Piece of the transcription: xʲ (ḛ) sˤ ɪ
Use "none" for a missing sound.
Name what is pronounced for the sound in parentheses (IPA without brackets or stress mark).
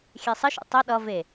e